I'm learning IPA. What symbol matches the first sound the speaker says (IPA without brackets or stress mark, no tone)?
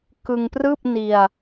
k